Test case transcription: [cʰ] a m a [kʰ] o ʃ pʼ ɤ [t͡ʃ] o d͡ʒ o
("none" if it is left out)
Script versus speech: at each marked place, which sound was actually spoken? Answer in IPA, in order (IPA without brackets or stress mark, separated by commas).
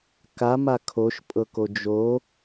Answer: k, kʰ, k